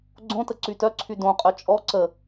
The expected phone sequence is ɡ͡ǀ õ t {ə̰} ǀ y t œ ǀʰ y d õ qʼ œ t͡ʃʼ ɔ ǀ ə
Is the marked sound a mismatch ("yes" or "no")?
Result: yes